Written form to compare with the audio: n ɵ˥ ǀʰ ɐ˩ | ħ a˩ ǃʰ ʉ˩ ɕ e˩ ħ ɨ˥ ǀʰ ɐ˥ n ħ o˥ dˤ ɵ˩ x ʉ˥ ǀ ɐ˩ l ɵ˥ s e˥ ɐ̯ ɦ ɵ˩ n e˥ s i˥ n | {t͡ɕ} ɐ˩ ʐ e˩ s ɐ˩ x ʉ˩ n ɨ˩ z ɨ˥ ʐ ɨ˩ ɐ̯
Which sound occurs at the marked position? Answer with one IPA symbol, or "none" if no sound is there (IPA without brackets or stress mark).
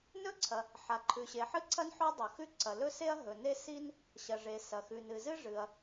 ɕ